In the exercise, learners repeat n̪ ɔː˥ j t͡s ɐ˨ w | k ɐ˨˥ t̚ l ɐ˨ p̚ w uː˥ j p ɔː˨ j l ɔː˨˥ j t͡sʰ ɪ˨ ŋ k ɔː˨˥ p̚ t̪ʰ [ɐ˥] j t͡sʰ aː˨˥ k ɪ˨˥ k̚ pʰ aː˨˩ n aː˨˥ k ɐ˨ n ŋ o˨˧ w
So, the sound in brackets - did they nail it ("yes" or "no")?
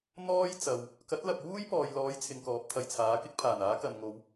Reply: no